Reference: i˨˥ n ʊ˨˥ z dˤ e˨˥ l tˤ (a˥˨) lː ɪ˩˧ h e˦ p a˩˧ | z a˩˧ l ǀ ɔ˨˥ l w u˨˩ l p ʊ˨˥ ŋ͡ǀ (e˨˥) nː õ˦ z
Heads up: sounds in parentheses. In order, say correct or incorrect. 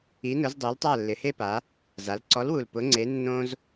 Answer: correct, correct

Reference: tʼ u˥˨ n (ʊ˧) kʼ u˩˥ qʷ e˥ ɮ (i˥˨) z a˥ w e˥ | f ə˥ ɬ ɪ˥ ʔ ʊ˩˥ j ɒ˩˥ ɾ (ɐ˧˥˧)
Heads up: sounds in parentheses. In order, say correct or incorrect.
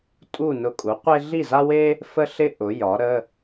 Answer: correct, correct, incorrect

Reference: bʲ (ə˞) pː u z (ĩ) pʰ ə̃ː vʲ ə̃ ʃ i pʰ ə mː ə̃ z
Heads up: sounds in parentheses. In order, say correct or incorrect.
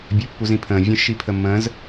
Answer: incorrect, correct

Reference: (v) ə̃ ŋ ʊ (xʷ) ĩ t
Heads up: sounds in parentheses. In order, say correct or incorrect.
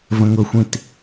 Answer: correct, correct

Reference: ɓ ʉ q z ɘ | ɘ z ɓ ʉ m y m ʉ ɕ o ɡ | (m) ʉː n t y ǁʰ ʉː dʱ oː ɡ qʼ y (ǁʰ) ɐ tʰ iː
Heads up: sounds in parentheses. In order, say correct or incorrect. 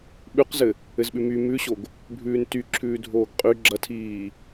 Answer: incorrect, incorrect

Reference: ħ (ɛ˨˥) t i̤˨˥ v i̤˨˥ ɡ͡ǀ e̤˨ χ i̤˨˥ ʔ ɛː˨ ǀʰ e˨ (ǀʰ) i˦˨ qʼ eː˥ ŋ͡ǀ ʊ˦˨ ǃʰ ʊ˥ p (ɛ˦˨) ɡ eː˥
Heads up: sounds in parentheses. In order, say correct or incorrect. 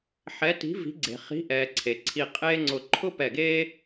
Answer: correct, correct, correct

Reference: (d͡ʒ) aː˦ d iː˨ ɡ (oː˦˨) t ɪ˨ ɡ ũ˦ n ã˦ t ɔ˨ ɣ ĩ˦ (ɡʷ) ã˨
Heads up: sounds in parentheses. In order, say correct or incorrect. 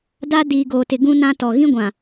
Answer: incorrect, incorrect, correct

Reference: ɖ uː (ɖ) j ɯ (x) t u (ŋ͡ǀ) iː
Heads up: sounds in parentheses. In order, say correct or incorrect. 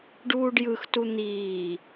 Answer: correct, correct, incorrect

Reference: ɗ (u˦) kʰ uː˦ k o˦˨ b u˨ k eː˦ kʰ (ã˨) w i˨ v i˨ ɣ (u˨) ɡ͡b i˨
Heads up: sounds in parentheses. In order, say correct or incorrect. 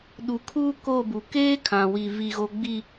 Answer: incorrect, correct, incorrect

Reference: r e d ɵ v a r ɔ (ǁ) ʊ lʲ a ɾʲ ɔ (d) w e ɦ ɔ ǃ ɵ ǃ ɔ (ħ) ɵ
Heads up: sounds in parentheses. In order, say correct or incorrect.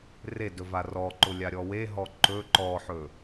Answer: incorrect, incorrect, correct

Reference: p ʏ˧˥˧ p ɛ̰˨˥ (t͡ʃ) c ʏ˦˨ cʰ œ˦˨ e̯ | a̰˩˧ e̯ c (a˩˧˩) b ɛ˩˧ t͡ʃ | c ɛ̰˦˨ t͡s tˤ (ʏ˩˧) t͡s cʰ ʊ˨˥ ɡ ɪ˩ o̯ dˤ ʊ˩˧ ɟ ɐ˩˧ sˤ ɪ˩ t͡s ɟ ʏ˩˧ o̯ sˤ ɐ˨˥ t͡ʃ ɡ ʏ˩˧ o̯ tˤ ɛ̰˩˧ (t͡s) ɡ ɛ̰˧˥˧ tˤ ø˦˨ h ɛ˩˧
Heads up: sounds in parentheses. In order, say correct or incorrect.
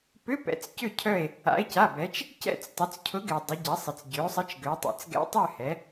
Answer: incorrect, correct, correct, correct

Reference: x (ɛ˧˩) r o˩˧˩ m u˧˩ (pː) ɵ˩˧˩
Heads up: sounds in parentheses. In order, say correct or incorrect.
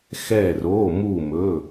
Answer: correct, incorrect

